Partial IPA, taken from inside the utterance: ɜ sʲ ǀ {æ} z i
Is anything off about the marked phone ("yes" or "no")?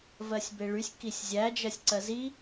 yes